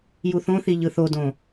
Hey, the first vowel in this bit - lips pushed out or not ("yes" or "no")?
yes